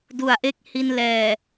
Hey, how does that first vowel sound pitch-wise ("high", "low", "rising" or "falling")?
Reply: low